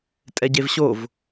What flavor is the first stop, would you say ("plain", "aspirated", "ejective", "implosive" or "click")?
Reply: ejective